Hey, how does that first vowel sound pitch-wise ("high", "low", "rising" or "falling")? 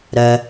low